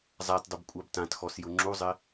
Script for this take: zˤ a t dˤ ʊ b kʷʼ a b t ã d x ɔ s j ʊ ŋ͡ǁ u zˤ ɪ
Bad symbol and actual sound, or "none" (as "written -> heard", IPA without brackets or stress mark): d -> t